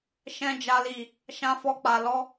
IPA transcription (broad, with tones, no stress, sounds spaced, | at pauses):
ʃ ɛ̃˧ d͡ʒ a˨ l i˨ | ʃ ã˧ f ɔ˧ k͡p a˨ l ɔ˧